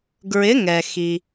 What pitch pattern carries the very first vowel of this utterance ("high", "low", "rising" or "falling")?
rising